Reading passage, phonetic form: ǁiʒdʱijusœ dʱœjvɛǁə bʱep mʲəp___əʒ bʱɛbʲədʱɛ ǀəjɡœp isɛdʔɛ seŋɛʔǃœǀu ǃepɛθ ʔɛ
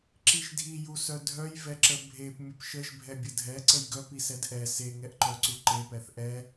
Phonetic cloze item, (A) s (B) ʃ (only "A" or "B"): B